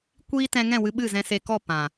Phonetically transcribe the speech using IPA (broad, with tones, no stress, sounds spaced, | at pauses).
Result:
kʷ iː˦ t ɛ̃˧ ŋ ɛ̃˦˨ w ɨ˧ ɓ ɨ˦˨ z ɛ̃˧ s e˧ k ɔ˦˨ p ã˨